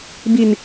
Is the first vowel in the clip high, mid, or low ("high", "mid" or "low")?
high